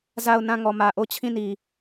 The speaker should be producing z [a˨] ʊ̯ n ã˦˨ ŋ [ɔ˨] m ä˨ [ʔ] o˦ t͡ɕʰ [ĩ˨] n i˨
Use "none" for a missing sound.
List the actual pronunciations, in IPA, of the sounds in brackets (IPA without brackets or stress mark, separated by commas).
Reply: a˦˨, ɔ˨, ʔ, ĩ˦˨